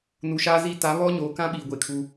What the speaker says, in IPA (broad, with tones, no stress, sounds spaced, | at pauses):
n u˨ ʃ aː˦ z i˦ t a˨˦ β ɔ˦ ɲ oː˨ k ã˦ ɓ iː˨ ɡʷ e˨ kʰ u˦